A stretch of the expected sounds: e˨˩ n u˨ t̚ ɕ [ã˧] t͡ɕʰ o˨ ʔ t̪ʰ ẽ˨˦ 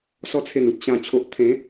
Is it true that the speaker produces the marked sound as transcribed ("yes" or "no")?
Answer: no